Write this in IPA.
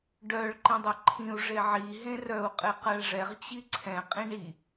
ɖ œ ɭ ǃ ĩ dˤ ɛ ǃʰ ĩ u̯ ʐ e ʕ i ɦ ẽ r œ u̯ qʼ e q a ɭ ʐ ɛ ʁ t͡ɕ i ǀʰ ɛ̃ qʼ ĩ ɳ i

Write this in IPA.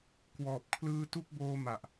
k w ɔː˨˩ p̚ kʰ l ɯː˧ t u˦˥ k̚ b oː˧ m a˨˩ ʔ

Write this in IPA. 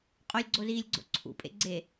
qʼ o lʲ ɡ͡ǀ o z iː lʲ ɡ͡ǀ o̰ ǀʰ ṵ pʼ ḛ ɡ͡ǀ e

